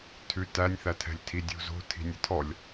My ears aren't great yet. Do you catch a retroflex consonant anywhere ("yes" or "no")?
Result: no